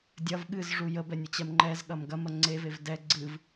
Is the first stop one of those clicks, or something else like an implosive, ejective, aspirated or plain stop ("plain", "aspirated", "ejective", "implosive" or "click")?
plain